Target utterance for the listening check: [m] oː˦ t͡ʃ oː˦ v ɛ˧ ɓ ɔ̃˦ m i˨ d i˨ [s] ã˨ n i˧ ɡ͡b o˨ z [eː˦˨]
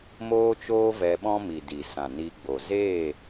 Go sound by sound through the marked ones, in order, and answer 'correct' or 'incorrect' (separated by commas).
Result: correct, correct, correct